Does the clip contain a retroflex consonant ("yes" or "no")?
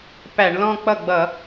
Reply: yes